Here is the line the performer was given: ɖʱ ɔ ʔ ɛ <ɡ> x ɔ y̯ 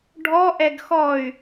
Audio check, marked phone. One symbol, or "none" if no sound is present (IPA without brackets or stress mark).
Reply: ɡ